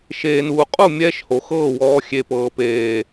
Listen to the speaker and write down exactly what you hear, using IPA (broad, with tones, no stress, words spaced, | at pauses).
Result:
ʃeː˨nuː˨qʼu˦˨ mʲɛː˦ʃho˨xɤː˦˨ wɔː˧ xʲe˨ pɤː˨peː˨